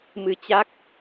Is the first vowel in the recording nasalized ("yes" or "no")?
no